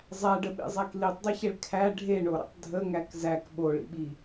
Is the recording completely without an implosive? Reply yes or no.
no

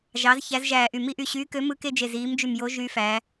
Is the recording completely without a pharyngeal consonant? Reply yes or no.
yes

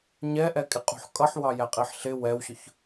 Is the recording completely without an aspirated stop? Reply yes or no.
yes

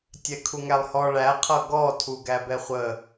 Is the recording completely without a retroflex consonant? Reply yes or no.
no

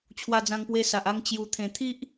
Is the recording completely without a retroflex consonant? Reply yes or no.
yes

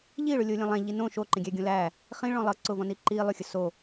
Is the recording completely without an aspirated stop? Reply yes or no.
yes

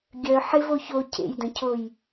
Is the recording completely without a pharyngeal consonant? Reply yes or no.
no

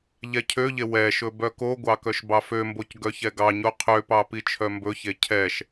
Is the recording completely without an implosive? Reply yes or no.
yes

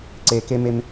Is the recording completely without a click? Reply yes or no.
no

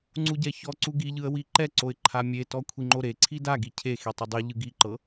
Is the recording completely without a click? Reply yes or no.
no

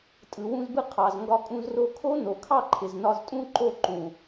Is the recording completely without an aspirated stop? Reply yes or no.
no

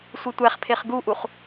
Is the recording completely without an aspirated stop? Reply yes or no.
no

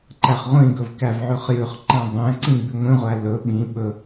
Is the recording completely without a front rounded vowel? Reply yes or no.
yes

